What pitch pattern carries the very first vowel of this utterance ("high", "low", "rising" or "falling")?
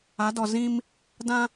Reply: rising